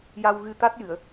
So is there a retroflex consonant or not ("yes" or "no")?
no